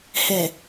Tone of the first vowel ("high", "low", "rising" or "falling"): low